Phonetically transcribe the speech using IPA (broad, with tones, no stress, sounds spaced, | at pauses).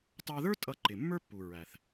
t ɑ˧ ð ə˞˥ tʼ ʌ˧ ǃ ɪ˩ mː ə˞˥ pː u˩ ɹ æ˩ θ